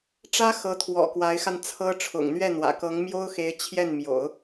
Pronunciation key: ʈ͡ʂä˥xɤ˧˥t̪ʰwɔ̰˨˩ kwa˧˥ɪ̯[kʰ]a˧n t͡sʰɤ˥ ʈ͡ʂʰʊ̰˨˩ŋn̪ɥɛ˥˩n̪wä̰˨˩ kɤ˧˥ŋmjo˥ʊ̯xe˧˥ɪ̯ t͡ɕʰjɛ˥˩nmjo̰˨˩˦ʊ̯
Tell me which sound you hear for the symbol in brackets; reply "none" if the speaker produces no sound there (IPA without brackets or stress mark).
x